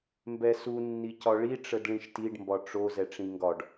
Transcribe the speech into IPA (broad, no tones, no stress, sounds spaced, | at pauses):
m b ɛ s u nː i c ɒ ɭ i ʈ͡ʂ ə d ɭ ĩ ʃ t i ɖ m b ɒ ʈ͡ʂ o z ɛ ʈ͡ʂ ĩ ŋ ɡ ɒ ɖ